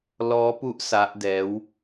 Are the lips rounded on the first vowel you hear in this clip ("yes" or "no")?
yes